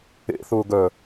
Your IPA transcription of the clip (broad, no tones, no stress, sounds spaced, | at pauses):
ḛ θ ʊː ɡ œ